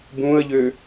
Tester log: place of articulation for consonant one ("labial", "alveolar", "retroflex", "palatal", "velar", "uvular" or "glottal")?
labial